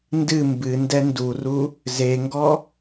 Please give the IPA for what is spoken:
n d ɨ m b ɨ n d ɛ n d u r u | z e ŋ ɡ ɔ

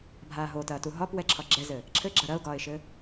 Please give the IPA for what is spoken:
bʱ aː ɦ o t ɐː t u ɦ ɒ p w ɛ ǁʰ ɒ ɡ͡ǁ ɛ z ɘ | ǁʰ ɘ ɡ͡ǁ ɐ ɾ ɐ ʊ̯ ɡ ɒː ɪ̯ ʃ ɘ

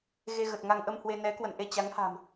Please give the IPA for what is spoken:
ɣ e˧ ɣ ə˨˩ t̚ ŋ a˧ ŋ ʔ ə˧ m h w e˧ n ɛ˨˦ k w ə̰˧˨ n ʔ e˧ t͡ɕ a˨˦ ŋ h a̤˨˩ m

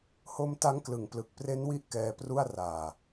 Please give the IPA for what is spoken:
h o˧ m t a˦˥ ŋ k l ɯ˩˦ ŋ p l ɯ˨˩ k̚ p r e˦˥ n w i˥˩ ʔ k ɛː˧ p r u˥˩ a̯ r aː˨˩

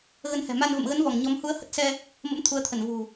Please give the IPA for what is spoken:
ɣ ə˧ n h ɛ̤˨˩ m a˧ n v ə̰˧˨ m ɣ ə˨˦ n v ɔ˧˩ ŋ ɲ ɔ˨˦ m h u˨˦ ə̯ h ə˦˥ t̚ s ɛ˧ | m ə̰˧˥ m t̪ʰ u˨˦ ə̯ t̪ʰ ə˧˩ n v ṳ˨˩

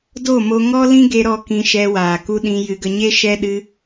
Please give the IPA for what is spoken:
d o˦˨ m o˧ ŋ ɔ˦ l ĩ˦ ɡ e˧ ɾ ɔ˧ k ĩ˧ ʃ ɛ˧ w aː˨ k u˧ ɗ ĩ˧ j ɨ˧ ɡ ə˧ ɲ e˦ ʃ ɛ˦ ɗ ɨ˦

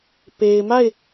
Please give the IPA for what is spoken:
p e˨ ɪ̯ m a˦˨ ɪ̯

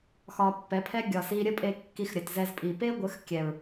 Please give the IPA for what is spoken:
x ɒ˧ pː ɛ˨˦ pʰ ɛ˦ ɡʲ ɒ˨ s i˧ ɾʲ ə˦ pʼ e˧ kː i˧ x ɾʲ ə˨ t z ɛ˧ z pʼ i˨ p e˦ ɡʷ ə˨˦ x kʲ ɛ˨ ɹ

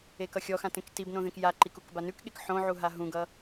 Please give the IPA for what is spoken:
e k ʌ xʲ ɔ x ã t ẽ k t i b n õ ð ẽ k j a ǃ i k u k b a n ʉ k ɠ e k ħ õ ʕ u ɦ a ɦ ũ ɡ ʌ

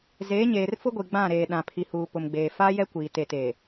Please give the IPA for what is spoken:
z eː˨˦ ɲ eː˨ r f ʊ˦ ɡʷ i˨ ɡ͡b ã˦˨ ɾ eː˨ ɗ ã˨ pʰ i˨ h uː˨ p ʊ˨ m ɡ͡b eː˨ f a˦ j ɛ˦ kʷ iː˨ t e˨ t eː˨

